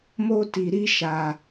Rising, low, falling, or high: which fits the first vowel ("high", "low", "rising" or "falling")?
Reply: high